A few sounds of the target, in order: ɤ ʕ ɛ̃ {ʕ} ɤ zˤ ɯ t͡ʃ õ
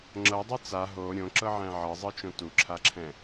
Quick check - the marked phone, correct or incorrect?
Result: correct